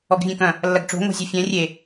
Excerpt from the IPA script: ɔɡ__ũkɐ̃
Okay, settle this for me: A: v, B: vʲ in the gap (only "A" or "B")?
B